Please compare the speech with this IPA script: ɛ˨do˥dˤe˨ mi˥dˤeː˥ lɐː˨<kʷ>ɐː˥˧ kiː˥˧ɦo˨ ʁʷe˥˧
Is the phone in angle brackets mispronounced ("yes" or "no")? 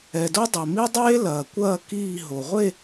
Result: no